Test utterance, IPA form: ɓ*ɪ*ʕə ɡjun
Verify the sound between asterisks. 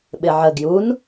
correct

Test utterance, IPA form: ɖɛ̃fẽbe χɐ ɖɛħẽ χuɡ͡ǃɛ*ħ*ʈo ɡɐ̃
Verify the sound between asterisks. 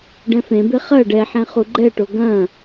incorrect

